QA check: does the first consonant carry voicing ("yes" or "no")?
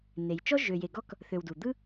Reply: yes